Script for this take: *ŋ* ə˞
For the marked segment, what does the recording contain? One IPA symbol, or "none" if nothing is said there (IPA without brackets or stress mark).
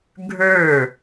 ɡʱ